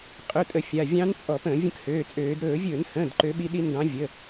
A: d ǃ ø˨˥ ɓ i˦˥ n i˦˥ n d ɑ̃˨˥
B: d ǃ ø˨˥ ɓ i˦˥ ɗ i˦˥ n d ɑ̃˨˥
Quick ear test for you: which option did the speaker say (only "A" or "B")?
B